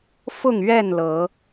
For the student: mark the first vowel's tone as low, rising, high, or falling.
falling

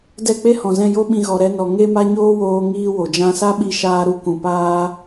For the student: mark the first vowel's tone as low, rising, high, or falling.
falling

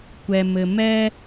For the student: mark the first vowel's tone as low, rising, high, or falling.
low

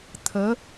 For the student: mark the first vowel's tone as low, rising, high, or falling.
rising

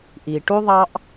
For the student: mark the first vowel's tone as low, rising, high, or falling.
low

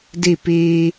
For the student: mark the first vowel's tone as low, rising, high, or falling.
falling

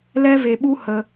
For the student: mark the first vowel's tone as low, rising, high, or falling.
high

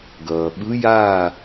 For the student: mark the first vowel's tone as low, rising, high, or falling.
low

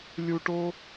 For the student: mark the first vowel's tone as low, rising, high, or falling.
low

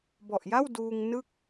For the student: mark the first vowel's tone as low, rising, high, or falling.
low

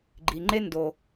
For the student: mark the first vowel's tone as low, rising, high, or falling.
low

